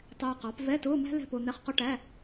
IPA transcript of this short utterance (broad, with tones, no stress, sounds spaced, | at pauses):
tˤ ɛː˧ q ɑ˩˥ p v ɛ˧˥˧ t ʊː˧˥˧ m æ̤˥ l ɛ̤˥˧ p ʊː˧ n̪ ɛ˧˥˧ χ q ɔ˥ ʈ æ˧˥˧